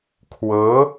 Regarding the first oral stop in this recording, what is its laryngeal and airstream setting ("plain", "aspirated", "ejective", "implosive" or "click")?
aspirated